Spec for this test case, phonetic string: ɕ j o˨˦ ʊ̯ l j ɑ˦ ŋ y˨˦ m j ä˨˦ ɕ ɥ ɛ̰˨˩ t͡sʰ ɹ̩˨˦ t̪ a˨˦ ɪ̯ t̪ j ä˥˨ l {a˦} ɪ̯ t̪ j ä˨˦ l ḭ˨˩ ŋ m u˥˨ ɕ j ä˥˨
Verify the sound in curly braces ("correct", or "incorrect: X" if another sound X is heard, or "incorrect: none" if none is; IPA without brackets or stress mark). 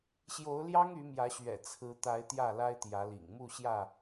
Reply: correct